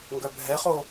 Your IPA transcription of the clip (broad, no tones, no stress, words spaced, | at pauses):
ŋɡœbʱɛχo